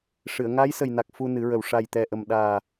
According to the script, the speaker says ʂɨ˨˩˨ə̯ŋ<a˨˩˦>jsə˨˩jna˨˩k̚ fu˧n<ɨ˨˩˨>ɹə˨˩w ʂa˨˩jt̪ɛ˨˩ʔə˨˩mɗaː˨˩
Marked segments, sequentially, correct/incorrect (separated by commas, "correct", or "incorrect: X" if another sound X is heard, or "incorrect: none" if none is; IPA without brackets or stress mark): incorrect: a˧˥, incorrect: ɨ˨˩˦